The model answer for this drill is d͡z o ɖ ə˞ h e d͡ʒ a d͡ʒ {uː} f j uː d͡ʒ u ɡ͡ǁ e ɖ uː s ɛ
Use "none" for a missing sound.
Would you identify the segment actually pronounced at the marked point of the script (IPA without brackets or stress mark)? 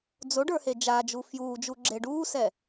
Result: u